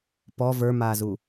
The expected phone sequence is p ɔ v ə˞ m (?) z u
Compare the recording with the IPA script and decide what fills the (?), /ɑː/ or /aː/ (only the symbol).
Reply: aː